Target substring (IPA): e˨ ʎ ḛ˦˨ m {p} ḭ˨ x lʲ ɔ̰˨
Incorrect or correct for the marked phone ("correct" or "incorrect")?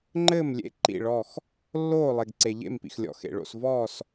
correct